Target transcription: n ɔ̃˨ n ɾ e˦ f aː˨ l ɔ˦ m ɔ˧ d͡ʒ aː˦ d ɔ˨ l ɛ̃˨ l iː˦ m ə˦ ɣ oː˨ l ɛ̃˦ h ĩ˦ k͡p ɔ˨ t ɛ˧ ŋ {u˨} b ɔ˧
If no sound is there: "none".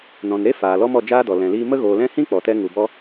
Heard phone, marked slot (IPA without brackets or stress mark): u˨